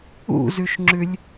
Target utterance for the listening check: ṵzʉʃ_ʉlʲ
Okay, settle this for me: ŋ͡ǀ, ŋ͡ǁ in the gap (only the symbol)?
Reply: ŋ͡ǁ